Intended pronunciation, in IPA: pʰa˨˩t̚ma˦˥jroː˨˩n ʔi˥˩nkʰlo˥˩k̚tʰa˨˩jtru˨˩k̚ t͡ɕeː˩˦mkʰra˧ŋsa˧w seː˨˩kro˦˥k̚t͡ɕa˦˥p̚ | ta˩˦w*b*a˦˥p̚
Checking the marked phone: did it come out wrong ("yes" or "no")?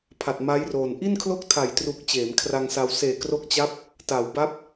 no